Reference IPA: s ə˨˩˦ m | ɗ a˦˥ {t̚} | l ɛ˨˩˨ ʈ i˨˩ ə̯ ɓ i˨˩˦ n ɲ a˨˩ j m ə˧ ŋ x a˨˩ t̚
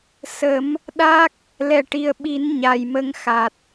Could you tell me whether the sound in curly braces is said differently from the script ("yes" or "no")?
yes